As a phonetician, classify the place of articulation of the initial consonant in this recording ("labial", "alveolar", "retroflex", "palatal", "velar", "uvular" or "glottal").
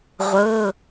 uvular